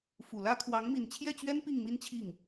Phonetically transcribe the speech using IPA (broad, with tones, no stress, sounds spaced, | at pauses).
f u˨˩ l ä˥ kʰ w ɑ˧˥ ŋ m i˨˩ n t͡ɕʰ j ɛ˥˩ t͡ɕ ɥ ɛ˥ n p i˥˩ ŋ m i˥ n t͡ɕʰ i˥˩ ŋ